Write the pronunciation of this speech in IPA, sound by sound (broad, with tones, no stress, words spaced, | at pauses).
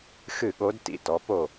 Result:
xɨ˥˩ɠo˧˥d tḭ˨˩˦tɔ˩˥po˥˩